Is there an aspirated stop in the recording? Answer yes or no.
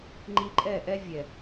no